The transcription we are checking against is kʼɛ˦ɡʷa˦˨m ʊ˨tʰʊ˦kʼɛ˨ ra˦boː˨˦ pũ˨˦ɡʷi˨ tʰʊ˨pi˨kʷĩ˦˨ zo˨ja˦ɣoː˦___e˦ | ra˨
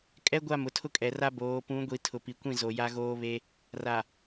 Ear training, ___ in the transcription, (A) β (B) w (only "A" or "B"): A